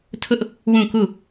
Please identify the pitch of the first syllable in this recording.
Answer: high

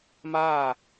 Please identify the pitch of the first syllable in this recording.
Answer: falling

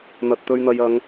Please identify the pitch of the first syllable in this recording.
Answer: low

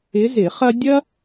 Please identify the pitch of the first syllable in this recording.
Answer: rising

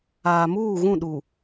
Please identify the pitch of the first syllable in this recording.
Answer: low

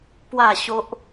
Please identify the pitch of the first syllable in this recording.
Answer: falling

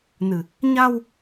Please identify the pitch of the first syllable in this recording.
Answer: low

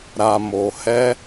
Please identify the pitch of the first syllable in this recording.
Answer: low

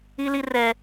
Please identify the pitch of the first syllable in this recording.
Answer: high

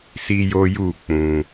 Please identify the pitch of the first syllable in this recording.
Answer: high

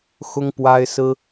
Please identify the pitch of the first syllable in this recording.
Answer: high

